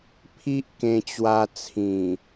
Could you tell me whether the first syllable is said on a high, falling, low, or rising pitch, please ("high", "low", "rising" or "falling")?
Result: high